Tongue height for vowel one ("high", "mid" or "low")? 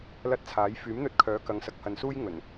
low